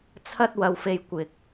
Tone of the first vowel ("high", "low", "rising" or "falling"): high